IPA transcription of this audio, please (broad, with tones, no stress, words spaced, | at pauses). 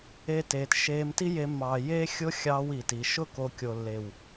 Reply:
e˦teː˧t ʃeː˧mti˦je˧mːɑː˨ jeː˦xʲʊ˦xʲɑː˧w iː˨ti˨ ʃʊ˦˨ko˨ kʲo˨lːe˨w